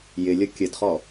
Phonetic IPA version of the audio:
jɪlʲʌ kʲədχɔ

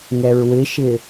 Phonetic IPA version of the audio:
ŋɛɹwɪʃɪ

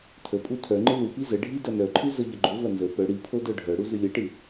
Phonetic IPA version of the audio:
tʰə pʼutʰœŋ͡ǃɨ lupi zəɖʱi dɐnœǃʰɨ zəʎɐɡ͡ǃovɐ nzə pœ ɽipʰo dœɖʱœɽu zɨlʲɐʈɨ

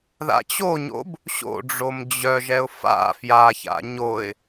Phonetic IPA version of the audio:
ða̰t͡ɕoɲo̰b | ɕo̰ɖ͡ʐom d͡ʑœʒɛʊ̯ fa̰ fjaça̰ ɲoɪ̯

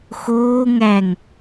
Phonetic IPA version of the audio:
xoː ŋæŋ

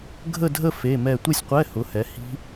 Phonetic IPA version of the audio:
ɡʱə˥˧dʱə˥˧ fe˧˥˧mɛ˥˧ tʷe˥˧sʲqʷɛ˧˥˧ hʊ˨˥hɛ˨˥hi̤˦˥

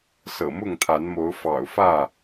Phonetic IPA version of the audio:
sɤ̰˨˩mʊ˥˨ŋt̪ʰa˨˦nmo˨˦ʊ̯ fɑ̰˨˩ʊ̯fä˥˨

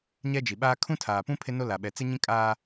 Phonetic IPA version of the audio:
ɲɛ˦d͡ʒi˨ɓaː˦ kʰũ˦tʰaː˨pũ˦ pʰe˦no˦la˨ɓɛ˨ t͡sɪ˦ɲĩ˦ kʼaː˦

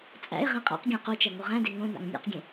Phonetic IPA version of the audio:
t͡sʼæ̰ɪ̯ ʁẽqʼæ̰qɡʲã qot͡ʃɐ ŋoʁæ̃de ŋõna̰ŋ nʲa̰qɡʲẽ

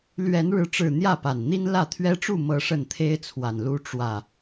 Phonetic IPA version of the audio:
lɥɛ˨˦nɻɻ̩˨˦ʈ͡ʂɻ̩˨˩ n̪jä˥˨pa˨˩nn̪i˦n lä˥˨t̪ʰɥɛ˦ʈ͡ʂu˥˨ mɤ˨˦ ʂə˥˨nt̪ʰe˦ɪ̯t͡sʰwa˨˩nlu˦ ʈ͡ʂwä˨˩

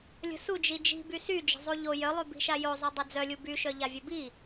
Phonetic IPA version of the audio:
lʲə̤su d͡ʒid͡ʒi̤ bysy d͡ʒə̤zˤuʎo jœlˠybi̤ʃa jozˤœ dˤɛd͡zœlʲu byʃœ ʎavʲœbi

